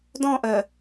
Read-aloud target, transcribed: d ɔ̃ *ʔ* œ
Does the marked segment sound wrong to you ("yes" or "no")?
no